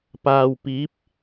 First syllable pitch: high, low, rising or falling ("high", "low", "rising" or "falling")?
low